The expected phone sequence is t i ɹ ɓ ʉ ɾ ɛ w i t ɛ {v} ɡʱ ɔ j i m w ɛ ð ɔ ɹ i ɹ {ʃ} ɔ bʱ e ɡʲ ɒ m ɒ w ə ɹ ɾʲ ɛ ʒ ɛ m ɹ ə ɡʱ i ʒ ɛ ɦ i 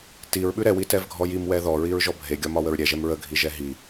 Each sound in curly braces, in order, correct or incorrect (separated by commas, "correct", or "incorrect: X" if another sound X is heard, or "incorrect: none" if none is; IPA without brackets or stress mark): correct, incorrect: ʒ